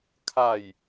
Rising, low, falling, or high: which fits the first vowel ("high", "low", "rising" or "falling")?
falling